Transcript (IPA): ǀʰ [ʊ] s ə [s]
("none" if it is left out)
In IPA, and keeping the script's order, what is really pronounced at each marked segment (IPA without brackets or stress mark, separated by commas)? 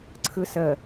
ɯ, none